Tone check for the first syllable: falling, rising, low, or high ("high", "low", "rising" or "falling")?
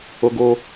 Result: high